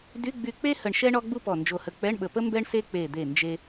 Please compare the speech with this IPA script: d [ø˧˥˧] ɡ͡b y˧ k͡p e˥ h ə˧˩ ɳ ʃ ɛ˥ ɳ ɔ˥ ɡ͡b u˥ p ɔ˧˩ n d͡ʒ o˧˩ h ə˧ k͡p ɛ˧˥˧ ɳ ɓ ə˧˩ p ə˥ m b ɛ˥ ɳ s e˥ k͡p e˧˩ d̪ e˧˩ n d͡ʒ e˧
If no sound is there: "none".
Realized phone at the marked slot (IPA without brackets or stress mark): y˧˥˧